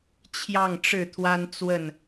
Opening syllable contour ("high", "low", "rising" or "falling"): falling